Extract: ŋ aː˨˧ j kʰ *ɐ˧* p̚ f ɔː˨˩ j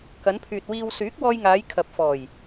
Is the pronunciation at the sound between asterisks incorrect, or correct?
incorrect